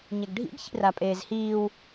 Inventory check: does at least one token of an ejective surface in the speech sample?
yes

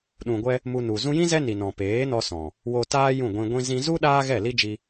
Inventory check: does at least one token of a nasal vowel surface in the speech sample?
yes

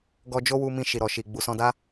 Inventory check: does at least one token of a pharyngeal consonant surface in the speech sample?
no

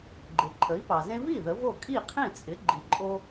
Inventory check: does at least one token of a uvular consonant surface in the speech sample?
yes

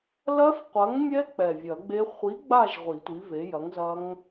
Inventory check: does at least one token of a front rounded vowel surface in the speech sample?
no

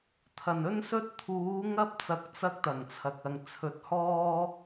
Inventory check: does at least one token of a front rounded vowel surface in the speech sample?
no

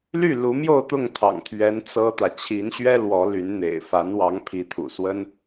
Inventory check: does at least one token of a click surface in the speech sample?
no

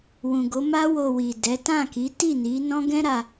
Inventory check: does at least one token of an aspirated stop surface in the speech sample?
no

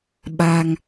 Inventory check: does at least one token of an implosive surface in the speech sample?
yes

